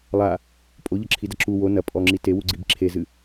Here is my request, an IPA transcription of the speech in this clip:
lˠ a | pʼ o ʎ ɐ ǁʰ i d ɐ ǁ u w o n ɐ pʼ ɔ ŋ͡ǁ i t e w u ɡ͡ǀ i b ǁʰ e z ɨ

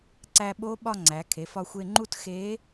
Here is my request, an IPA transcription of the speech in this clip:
ǀ æ˧ ɓ o˧˥ ɓ ɒ˥˧ ŋ͡ǀ æ˩˧ kʰ e˩˧ f ɒ˧ xʷ e˧ ŋ͡ǃ u˥˧ t x e˧˥

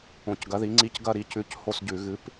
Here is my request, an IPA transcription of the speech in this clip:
õ˧˩˧ c ɡ ɐ˨˥ ð i˨˥ ŋ͡ǀ i˦˥ c ɡ ɐ˥˧ ɾ i˨˥ c ʉ˨˥ c h o˥˧ s ɟ ʉ˧˩˧ ɣ ɨ˨˥ p

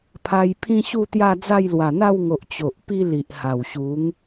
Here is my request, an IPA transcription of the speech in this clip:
pʰ a˧ j pʰ ĩ˦ ɕ u˥˧ t̪ j a˥˧ d͡z a˥˧ j l w a˨˩ n̪ a˥˧ w ŋ o˨ ʔ t͡ɕ o˨ ʔ p i˦ l i˨ ʔ h a˨˩ w ɕ u˨˦ ŋ

